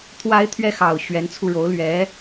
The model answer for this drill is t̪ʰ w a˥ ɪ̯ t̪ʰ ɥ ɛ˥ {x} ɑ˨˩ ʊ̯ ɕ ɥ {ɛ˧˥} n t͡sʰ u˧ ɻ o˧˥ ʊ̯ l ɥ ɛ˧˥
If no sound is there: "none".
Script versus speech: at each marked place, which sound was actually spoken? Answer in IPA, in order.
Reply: x, ɛ˧˥

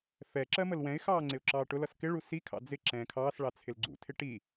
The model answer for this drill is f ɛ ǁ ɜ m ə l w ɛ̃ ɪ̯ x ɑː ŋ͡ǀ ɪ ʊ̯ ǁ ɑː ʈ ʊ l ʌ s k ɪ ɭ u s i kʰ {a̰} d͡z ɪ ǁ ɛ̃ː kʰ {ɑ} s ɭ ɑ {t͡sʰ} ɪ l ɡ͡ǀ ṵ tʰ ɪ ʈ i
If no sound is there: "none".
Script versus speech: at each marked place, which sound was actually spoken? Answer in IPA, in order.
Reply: ɑ̰, ɑː, t͡sʰ

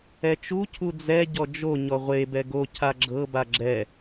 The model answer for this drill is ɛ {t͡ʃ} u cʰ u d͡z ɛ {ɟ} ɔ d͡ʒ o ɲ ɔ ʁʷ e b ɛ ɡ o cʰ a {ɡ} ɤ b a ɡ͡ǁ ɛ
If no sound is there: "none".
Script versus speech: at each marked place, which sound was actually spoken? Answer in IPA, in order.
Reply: t͡ʃ, ɟ, ɡ͡ǁ

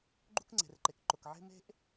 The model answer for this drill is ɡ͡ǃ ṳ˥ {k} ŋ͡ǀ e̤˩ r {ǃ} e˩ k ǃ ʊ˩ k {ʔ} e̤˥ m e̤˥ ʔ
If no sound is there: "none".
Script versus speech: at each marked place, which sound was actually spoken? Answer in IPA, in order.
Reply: k, ǃ, ʕ

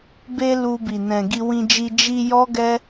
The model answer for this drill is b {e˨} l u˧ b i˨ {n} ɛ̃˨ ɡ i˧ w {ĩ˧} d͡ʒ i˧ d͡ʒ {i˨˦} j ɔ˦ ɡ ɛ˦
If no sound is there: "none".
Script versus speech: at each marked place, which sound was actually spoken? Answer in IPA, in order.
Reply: e˧, n, ĩ˧, i˧

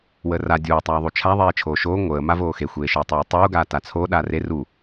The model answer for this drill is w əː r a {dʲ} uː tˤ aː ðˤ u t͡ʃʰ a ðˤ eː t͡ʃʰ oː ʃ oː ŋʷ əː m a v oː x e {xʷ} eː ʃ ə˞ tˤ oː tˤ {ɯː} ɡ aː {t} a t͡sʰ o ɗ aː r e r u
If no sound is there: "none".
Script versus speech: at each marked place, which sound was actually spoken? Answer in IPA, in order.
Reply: dʲ, xʷ, uː, t

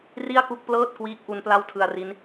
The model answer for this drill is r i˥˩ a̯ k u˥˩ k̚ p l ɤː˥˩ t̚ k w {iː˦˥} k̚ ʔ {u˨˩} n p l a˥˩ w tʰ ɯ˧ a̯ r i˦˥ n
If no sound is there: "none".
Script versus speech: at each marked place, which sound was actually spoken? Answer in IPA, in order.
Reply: iː˦˥, u˦˥

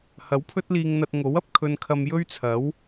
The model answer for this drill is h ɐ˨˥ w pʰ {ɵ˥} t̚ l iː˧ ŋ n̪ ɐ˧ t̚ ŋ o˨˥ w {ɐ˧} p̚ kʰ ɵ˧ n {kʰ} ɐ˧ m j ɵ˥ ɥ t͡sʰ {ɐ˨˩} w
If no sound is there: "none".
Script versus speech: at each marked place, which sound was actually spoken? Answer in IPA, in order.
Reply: ɵ˥, ɐ˨, kʰ, ɐ˨˥

